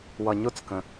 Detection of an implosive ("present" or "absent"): absent